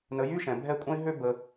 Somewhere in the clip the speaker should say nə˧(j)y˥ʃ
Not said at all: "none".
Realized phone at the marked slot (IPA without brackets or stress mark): j